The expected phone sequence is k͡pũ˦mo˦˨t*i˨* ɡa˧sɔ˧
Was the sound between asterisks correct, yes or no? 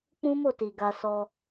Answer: yes